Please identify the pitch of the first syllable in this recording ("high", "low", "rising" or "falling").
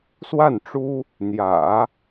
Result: falling